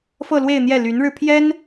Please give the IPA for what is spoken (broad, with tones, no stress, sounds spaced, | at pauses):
f ɤ˥˧ l w e˥˧ ɪ̯ n̪ j ɛ˥˩ l y˧˥ n ɻ ɻ̩˧ pʰ j ɛ˥ n